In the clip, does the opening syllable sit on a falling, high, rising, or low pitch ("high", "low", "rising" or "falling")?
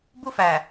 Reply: high